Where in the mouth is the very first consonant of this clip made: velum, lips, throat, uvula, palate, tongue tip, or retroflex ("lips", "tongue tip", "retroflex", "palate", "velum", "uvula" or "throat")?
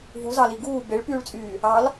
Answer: lips